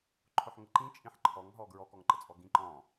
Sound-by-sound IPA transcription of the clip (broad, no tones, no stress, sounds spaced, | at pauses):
ǃʰ ʊ ħ ŋ ə ǃ ĩ t͡ʃʼ ĩ ħ ǃʰ ɔ ŋ ɦ ɔ ɡ ɹ ɔ k ɔ ŋ ǃ ə t͡sʼ ɔ ɡ ĩ ǃ ɔ̃